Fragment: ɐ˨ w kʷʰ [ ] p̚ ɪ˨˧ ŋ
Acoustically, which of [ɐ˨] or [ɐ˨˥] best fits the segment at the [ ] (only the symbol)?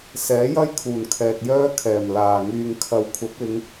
ɐ˨˥